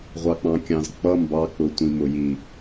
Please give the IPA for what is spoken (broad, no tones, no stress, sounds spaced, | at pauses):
ʁʷ ɑ k͡p ɑ̃ kʲ ɑ̃ z k͡p ʌ m b ɑ k͡p ʊ tʷ ĩ m ʊ j i